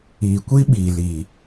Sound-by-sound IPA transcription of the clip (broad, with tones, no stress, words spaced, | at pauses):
i˨kʷi˦ ɓi˨li˨